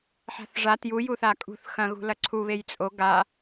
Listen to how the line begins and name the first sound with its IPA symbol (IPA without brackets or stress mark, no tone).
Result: ħ